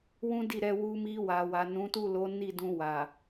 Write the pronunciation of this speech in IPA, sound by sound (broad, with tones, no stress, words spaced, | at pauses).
wũ˦di˦˨ɾɛ˧ wu˧mi˧wa˨wa˨ nũ˨˦tu˦˨lo˨˦ ni˦˨dũ˧ wa˨